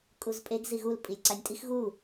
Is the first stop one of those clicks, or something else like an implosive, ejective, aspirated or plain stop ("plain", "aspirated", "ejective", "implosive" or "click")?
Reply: ejective